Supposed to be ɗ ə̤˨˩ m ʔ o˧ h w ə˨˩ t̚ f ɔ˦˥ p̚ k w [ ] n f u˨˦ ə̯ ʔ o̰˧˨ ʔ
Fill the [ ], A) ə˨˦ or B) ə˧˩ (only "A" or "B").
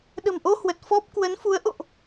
A